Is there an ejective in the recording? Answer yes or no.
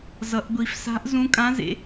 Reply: yes